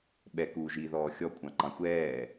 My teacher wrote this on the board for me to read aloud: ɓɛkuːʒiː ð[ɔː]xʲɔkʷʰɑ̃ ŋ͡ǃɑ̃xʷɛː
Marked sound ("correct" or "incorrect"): correct